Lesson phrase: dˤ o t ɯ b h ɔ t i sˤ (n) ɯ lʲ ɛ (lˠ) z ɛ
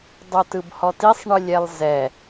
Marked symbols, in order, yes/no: no, yes

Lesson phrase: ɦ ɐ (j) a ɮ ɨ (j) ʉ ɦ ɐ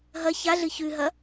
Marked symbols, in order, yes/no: no, no

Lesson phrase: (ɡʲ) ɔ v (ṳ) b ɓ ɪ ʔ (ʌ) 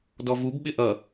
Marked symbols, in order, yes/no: no, no, yes

